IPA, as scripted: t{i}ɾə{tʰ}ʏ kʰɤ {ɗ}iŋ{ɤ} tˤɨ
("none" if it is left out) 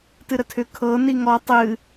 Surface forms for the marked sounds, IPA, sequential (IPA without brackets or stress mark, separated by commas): ɨ, tʰ, n, ɔ